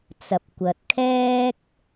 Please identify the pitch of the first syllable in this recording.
low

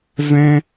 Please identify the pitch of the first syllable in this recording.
high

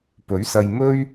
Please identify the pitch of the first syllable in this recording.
rising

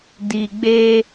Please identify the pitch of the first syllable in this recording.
low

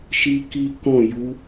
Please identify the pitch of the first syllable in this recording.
high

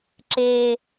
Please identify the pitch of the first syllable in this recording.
low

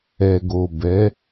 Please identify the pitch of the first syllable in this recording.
low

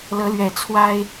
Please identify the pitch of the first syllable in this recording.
rising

